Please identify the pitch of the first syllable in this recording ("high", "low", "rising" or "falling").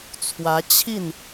rising